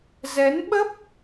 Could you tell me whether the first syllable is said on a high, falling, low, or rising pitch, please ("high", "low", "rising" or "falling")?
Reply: rising